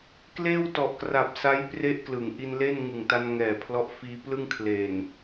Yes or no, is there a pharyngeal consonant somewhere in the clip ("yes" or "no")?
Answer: no